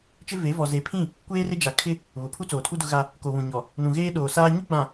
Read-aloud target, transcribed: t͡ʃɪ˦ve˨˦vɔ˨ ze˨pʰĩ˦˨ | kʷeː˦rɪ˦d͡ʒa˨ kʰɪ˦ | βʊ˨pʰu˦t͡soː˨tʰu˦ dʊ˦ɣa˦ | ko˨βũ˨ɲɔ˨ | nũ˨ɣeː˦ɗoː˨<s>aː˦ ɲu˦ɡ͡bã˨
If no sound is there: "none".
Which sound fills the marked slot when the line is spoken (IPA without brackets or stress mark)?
s